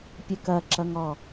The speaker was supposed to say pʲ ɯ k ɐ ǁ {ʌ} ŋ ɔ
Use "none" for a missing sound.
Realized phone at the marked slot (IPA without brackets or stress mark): ʌ